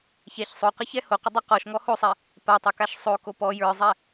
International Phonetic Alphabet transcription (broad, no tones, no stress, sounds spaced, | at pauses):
ç ɛ ç sˤ o q ə ç ɛ h o q ə dˤ o q ɔ ʃ ŋ ɔ h o sˤ ɛ | p a tˤ o k a ʃ sˤ o k o p ɔ j ə˞ zˤ ɛ